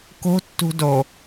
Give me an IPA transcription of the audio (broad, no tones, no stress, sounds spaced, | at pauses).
k o̤ tː ṳ d o